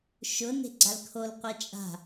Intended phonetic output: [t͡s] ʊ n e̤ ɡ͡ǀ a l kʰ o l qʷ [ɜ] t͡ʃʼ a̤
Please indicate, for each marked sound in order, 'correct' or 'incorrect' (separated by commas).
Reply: incorrect, incorrect